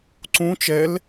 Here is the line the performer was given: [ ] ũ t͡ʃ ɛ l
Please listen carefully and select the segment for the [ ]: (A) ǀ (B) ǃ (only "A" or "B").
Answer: A